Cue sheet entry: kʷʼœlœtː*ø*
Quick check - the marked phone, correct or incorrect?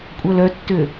correct